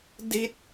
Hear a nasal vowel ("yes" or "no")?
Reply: no